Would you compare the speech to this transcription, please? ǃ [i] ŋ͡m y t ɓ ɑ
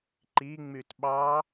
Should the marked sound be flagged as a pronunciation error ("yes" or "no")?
no